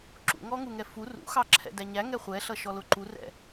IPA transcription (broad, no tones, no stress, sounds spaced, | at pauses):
ǁ ṵ ŋ ɔ ŋ u ŋ ɛ f u r ṵ x ɑ ǁʰ ɛ̰ d æ ɲ æ ŋ ɛ χʷ ɛ ɬ ʌ ʃ ɔ l ʊ ǃ u r ɛ̰